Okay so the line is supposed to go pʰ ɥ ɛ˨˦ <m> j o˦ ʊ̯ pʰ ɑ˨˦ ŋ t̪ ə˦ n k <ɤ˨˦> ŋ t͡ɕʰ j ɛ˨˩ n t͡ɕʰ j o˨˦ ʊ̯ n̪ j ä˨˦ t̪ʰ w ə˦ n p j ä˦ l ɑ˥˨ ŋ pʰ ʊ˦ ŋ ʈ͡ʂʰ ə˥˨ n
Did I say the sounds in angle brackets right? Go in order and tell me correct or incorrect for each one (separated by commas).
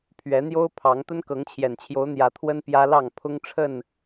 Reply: incorrect, correct